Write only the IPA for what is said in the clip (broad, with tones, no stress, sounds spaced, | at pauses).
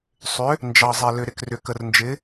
sˤ ʏ˨˥ | n d͡ʒ ɑ˨ zˤ ɛ˨ l ʏ˨ ɾ ɪ˨ k r ʏ˨ k ə˨ r n d͡ʒ ɪ˨˥